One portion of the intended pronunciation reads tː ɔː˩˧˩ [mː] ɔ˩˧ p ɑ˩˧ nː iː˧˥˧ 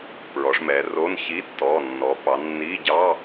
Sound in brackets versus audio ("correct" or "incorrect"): incorrect